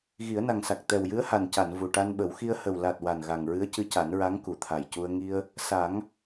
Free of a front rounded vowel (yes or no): yes